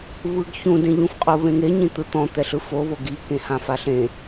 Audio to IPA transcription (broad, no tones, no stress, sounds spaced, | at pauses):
β ɯ ɡ ç ũ d ẽ ʎ ũ f qʼ o β ẽ ŋ e ɲ ĩ t̪ ɯ t̪ ɔ̃ t̪ ɛ ɬ ɯ f o β o ɡ i k ẽ h ã f a ɬ ẽ